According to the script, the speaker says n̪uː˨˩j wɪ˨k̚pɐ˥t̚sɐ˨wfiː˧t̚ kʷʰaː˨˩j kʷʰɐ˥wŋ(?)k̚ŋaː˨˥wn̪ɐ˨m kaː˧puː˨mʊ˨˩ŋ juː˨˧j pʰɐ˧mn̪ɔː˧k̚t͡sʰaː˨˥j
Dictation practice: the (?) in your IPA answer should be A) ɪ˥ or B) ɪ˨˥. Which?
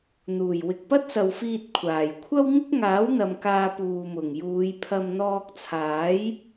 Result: A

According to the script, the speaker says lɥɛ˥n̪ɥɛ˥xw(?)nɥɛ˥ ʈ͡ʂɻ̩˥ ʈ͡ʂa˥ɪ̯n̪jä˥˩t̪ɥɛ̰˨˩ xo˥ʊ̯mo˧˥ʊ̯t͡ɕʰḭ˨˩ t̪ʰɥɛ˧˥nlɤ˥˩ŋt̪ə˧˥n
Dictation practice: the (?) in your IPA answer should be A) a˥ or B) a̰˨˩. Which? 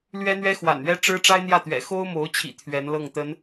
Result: B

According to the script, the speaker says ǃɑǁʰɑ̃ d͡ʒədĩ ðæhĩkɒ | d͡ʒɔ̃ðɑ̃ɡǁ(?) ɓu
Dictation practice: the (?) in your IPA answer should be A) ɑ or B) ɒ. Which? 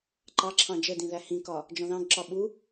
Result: B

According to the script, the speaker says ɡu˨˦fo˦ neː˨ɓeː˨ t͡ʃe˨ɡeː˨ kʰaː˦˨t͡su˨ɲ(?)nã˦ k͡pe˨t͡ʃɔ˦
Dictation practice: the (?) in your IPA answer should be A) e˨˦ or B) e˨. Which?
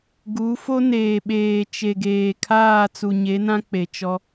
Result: A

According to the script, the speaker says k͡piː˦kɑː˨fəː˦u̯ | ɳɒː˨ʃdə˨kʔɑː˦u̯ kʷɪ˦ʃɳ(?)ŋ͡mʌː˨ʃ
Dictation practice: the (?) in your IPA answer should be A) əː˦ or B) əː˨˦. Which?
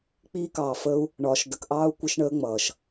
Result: A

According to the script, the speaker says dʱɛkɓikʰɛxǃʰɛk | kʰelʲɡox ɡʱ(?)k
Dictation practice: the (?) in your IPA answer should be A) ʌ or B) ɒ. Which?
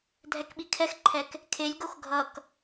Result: A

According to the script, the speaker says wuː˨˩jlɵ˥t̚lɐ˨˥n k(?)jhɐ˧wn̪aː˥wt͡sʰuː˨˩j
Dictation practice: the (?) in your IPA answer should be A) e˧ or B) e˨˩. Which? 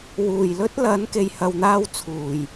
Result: A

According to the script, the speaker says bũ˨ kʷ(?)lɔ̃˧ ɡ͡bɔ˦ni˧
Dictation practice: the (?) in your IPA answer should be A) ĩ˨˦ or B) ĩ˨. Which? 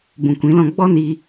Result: A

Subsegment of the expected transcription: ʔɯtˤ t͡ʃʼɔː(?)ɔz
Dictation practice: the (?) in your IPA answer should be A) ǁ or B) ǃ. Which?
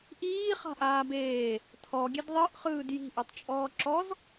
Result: A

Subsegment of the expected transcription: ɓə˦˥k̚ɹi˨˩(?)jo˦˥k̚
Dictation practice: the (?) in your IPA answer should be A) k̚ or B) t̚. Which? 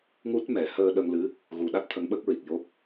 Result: A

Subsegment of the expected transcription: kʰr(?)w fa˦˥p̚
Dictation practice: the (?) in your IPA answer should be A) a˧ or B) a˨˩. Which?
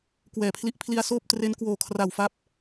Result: B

